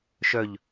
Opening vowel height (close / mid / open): mid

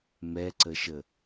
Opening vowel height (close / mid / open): mid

